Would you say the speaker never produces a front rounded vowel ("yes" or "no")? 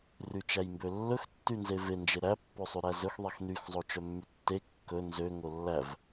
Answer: no